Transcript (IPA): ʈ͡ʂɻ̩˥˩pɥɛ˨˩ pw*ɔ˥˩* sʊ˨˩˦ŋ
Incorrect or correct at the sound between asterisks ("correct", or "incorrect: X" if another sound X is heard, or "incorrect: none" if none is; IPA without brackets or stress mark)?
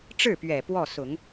correct